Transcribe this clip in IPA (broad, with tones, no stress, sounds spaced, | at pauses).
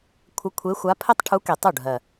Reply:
kʷʰ ə˧˥ kʷʰ e˧˥ xʷ a˧˥ pʰ ɘ˥ tˤ ʈʰ u˧˥ k e˨˩ tˤ u˥˩ ɖʱ ɜ˨˩